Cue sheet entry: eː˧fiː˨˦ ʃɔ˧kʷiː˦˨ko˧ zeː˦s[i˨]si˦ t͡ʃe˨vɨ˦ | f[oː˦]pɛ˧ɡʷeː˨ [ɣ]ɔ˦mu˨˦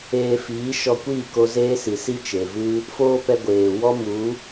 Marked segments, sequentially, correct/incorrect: correct, correct, incorrect

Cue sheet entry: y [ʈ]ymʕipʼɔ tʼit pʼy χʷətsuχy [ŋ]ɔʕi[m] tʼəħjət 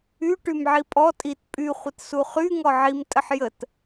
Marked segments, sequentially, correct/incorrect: correct, correct, correct

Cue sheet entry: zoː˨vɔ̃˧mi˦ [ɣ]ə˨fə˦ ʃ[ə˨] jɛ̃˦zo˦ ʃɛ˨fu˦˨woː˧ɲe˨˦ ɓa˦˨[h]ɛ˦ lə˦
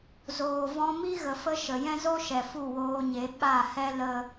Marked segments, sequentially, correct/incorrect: correct, correct, correct

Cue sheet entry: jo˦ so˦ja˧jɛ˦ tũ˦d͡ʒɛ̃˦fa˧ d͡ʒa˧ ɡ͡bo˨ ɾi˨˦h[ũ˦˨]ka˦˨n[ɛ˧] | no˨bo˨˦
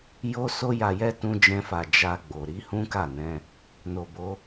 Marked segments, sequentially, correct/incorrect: incorrect, incorrect

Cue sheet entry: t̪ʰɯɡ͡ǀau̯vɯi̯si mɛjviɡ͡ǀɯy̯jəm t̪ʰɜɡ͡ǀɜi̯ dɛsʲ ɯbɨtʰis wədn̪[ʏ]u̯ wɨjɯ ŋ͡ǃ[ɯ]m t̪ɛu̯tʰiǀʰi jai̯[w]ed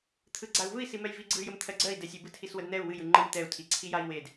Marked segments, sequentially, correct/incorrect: incorrect, correct, correct

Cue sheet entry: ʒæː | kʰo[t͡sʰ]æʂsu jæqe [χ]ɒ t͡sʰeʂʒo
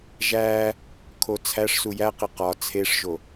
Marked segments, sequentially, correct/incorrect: correct, incorrect

